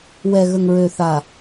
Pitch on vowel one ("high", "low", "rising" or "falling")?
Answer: low